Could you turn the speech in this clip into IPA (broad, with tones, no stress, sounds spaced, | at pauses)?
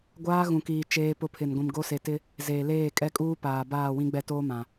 ɡʷ aː˦ ɣ ũ˨ k iː˨ t͡ʃ eː˦ p ʊ˦ pʰ ɪ˨ n ɡʷ ĩ˨ m ɡ o˦ s e˨ t ɪ˦ | z eː˨ l eː˦˨ kʼ ɛ˦ kʼ uː˦ p aː˨ b aː˦˨ w ĩ˦ ɡ͡b ɛ˦˨ t oː˦ m ã˨